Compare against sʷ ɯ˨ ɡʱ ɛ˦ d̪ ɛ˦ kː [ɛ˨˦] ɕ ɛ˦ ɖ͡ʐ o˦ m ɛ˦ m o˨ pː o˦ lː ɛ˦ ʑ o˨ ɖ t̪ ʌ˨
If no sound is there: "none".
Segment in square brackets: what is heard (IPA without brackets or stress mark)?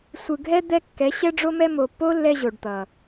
ɛ˨˦